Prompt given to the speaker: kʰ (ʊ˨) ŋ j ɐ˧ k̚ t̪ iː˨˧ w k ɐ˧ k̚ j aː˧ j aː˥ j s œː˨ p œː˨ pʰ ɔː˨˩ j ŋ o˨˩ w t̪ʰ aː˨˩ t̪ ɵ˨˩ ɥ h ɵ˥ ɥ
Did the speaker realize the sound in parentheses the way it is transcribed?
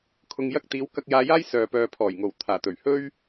yes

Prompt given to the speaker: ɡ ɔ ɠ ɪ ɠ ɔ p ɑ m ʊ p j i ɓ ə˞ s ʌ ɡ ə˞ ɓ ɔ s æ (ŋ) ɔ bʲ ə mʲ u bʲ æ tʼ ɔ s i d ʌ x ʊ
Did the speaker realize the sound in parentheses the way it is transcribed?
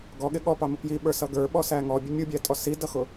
yes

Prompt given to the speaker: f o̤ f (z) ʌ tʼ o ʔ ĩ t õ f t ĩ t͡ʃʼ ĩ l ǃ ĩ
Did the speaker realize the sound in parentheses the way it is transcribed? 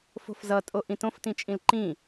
yes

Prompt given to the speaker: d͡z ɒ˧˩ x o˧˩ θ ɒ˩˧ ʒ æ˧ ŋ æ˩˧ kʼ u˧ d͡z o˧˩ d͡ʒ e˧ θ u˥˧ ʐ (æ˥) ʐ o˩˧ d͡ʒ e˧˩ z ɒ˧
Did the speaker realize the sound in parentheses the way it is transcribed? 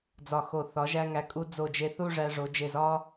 no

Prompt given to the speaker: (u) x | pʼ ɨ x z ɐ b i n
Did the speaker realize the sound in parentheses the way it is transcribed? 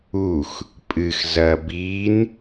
yes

